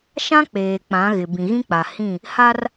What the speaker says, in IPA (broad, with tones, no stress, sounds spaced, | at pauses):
ʃ ã˦ k͡p eː˨ k͡p ã˨˦ ɣ ɪ˨ b ĩ˨ ɣ ĩ˦ k͡p a˨ h ĩ˦˨ | h a˦ r